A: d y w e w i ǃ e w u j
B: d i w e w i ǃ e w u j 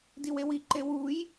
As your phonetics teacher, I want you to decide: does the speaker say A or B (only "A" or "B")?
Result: B